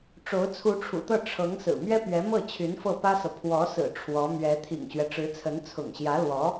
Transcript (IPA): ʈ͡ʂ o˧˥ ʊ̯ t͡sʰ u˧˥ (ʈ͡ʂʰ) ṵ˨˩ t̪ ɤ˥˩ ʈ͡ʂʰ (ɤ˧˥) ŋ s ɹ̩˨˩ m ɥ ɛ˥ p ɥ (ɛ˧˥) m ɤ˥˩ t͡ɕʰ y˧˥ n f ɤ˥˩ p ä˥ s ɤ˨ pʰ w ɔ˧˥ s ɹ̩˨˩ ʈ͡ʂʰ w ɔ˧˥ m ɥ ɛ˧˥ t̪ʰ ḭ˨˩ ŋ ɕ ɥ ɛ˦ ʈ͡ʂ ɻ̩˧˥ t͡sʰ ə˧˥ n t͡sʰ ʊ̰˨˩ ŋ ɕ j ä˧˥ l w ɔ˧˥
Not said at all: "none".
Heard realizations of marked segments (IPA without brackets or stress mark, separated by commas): ʈ͡ʂʰ, ɤ˧˥, ɛ˧˥